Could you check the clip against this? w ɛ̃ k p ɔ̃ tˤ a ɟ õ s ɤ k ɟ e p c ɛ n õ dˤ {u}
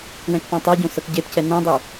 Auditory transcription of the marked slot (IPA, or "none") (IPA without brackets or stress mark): u